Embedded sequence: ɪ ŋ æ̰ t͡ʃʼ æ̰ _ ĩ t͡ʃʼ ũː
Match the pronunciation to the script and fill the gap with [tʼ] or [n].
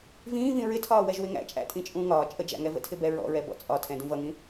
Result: tʼ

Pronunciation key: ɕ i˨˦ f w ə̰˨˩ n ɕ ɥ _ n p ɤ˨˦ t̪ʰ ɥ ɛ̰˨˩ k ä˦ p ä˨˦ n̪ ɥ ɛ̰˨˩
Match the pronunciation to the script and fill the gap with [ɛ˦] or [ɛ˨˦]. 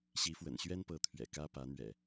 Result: ɛ˦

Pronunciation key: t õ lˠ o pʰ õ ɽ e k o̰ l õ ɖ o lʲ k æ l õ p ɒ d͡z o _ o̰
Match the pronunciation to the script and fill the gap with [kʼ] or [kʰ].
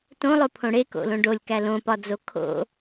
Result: kʰ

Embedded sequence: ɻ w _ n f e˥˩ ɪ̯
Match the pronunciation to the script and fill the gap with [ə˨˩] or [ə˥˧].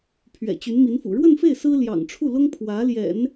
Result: ə˥˧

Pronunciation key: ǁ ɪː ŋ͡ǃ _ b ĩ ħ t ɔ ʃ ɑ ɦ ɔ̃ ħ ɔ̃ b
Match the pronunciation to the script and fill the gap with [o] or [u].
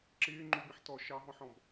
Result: u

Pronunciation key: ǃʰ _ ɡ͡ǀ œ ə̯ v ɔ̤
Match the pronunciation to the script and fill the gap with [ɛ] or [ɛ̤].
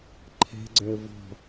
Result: ɛ̤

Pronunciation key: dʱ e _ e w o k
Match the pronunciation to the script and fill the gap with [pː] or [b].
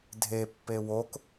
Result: pː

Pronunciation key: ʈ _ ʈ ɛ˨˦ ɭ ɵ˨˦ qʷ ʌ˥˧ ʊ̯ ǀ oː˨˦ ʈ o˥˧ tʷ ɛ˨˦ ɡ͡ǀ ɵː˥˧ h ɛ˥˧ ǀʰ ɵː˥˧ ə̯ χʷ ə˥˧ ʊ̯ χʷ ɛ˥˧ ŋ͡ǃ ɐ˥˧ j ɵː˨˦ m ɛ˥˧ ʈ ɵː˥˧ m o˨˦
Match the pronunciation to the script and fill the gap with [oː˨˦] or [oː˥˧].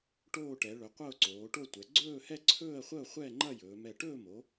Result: oː˥˧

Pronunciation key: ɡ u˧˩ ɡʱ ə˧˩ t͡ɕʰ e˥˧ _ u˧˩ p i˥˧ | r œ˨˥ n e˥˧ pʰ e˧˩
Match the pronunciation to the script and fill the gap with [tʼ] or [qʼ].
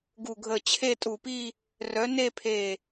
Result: tʼ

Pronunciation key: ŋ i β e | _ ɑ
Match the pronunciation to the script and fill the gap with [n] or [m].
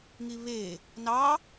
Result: n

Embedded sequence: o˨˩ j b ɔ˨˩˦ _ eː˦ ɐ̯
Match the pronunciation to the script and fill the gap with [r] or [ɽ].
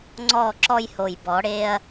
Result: ɽ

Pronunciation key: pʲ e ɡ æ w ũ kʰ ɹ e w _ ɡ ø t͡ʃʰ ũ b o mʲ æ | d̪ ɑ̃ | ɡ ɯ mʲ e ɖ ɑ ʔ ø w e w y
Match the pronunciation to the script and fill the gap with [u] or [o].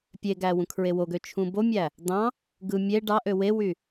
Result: o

